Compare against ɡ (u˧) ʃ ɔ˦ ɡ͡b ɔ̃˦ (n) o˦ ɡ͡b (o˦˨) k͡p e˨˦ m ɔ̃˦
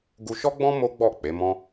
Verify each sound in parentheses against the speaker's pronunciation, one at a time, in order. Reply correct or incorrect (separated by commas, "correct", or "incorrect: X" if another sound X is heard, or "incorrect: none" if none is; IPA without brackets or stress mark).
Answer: correct, incorrect: m, incorrect: ɔ˦˨